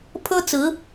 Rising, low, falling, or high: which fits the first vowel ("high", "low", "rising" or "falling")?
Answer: high